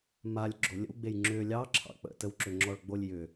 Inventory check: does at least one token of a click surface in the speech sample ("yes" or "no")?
yes